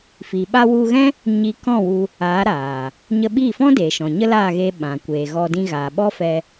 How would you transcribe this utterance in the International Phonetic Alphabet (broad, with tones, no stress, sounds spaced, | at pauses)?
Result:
f i˨ ɓ a˧ w u˧ ɣ ɛ̃˦ | ɲ i˧ k ɔ̃˦˨ w u˧ | aː˨˦ ɾ aː˨ | ɲ ə˧ ɓ iː˦˨ f ɔ̃˦ d eː˨ ʃ ɔ̃˨ ɲ ə˦ l aː˦˨ ɣ e˧ ɓ ã˨ kʷ e˨ ɣ ɔ˧ d ĩ˧ ɣ aː˨ ɓ ɔ˦ f ɛ˧